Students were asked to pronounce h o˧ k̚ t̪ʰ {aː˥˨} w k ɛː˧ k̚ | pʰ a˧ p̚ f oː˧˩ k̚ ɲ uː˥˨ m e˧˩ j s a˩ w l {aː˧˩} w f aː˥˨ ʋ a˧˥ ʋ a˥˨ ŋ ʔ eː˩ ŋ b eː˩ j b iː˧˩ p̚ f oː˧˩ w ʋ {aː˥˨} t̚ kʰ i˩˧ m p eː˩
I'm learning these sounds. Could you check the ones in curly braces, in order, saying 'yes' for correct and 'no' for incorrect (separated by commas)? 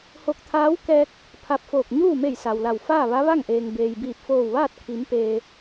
no, no, yes